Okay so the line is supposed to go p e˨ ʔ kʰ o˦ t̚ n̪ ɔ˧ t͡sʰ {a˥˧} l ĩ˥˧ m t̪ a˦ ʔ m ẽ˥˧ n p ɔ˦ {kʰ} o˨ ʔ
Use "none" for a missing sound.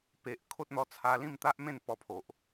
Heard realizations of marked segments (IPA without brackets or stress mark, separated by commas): a˧, pʰ